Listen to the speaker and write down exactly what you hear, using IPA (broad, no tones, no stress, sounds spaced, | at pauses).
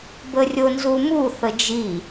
b ə rʲ o n z u m u θ ə d͡ʒ i